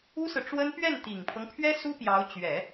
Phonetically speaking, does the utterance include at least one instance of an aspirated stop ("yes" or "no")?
yes